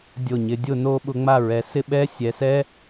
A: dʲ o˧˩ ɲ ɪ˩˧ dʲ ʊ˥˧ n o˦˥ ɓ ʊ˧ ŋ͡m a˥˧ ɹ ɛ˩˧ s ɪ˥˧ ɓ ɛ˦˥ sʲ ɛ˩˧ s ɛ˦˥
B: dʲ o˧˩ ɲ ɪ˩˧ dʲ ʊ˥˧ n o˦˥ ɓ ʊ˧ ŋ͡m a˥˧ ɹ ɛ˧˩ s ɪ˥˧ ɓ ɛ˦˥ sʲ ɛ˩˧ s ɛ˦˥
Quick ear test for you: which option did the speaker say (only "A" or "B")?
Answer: A